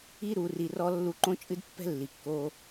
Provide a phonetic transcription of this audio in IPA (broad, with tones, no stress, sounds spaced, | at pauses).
i˦ ɾ u˨ r i˨ r ɔ˧ lː u˧ ǃ õ˦ t͡ʃʼ ɨ˦ d pː ɛ̤˦ lː i˨ kː o˧